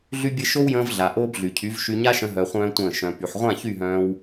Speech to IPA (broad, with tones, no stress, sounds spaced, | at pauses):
ɮ y˧ bʲ ɘ˧ ʃ o˦ w j ə̃ː˧ v ɮ a˨ ʔ oː˧ b ɮ y˨ cʰ y˨˦ v ʃ y˧ ɲ a˦ ʃ ə̃˧ ɦ œ˧ χʷ œ̃ː˦ tʷ ə̃ː˦˨ ʃ œ̃˨ p y˨ ħ ʁʷ ã˦˨ ç y˦˨ ɦ œ̃ː˧ w